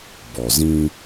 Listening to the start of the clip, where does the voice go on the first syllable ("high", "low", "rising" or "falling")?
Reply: low